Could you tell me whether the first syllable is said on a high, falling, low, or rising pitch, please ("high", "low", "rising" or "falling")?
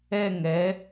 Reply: falling